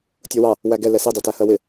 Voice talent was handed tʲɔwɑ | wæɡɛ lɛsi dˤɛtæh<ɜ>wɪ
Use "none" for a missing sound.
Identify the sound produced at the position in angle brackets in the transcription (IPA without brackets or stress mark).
ɜ